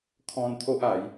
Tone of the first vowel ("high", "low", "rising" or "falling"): high